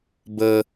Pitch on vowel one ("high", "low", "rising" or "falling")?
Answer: high